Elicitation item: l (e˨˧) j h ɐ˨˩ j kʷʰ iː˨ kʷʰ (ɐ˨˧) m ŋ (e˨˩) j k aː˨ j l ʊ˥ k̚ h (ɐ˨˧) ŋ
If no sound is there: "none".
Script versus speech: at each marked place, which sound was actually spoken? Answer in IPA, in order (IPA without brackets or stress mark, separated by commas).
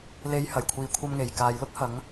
e˨˧, ɐ˧, e˨˩, ɐ˨˧